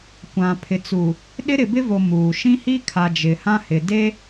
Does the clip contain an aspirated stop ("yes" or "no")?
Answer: yes